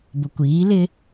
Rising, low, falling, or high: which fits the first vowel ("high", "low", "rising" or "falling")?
low